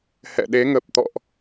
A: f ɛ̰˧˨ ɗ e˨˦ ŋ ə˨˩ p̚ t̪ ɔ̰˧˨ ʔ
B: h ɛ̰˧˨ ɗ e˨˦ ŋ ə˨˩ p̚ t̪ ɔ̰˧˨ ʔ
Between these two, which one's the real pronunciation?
B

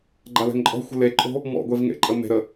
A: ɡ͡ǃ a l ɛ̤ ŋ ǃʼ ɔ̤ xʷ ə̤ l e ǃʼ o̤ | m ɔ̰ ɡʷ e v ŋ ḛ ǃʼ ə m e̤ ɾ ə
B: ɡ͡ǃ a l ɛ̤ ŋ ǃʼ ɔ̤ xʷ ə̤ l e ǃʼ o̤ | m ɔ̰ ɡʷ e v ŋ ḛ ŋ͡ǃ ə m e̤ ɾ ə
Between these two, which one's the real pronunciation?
A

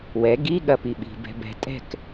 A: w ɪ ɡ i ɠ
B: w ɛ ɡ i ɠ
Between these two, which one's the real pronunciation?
B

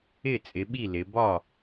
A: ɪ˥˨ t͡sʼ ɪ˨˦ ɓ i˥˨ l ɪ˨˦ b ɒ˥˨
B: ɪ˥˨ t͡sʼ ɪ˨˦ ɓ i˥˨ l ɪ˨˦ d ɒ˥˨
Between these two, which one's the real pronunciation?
A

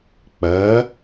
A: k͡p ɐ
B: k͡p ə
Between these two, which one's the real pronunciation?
A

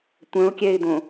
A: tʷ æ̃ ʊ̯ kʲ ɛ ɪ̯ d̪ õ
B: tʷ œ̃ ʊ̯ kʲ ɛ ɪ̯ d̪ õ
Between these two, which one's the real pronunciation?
B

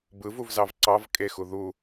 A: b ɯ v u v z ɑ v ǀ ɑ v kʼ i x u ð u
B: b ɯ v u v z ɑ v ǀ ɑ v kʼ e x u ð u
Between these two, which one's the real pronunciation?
B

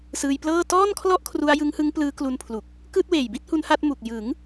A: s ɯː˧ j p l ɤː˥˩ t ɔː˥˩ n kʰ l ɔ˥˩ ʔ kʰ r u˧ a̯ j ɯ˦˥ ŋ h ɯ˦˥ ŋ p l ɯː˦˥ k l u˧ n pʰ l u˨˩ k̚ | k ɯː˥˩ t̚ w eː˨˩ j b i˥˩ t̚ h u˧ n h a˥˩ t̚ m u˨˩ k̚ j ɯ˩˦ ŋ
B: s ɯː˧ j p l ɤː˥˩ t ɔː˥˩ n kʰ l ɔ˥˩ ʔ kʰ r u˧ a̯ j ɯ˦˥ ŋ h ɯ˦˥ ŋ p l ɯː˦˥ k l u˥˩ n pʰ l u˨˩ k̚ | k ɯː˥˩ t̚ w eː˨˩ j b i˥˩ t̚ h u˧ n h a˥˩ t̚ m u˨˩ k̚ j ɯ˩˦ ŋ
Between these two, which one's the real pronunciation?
A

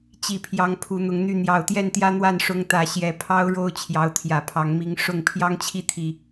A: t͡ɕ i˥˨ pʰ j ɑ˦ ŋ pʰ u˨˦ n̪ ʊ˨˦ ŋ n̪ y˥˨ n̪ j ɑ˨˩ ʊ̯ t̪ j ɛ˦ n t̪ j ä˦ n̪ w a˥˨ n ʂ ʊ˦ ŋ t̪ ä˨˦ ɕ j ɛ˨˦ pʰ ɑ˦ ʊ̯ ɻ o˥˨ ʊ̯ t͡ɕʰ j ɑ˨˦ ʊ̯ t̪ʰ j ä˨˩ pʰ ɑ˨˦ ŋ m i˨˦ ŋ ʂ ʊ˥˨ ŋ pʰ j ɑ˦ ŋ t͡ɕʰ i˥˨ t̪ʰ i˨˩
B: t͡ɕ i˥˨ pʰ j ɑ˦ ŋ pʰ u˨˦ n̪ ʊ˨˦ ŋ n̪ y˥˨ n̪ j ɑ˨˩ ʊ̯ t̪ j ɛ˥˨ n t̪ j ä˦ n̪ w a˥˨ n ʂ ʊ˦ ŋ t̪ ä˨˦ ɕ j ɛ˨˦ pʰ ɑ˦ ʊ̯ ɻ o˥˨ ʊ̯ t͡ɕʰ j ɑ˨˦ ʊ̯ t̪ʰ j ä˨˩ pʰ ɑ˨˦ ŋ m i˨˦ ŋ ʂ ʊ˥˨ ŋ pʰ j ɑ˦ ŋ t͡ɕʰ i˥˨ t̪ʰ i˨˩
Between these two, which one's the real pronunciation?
B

